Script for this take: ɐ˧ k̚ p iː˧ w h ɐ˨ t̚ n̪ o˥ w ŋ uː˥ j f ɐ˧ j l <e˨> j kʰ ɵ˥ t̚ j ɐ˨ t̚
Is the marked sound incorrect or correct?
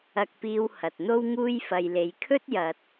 incorrect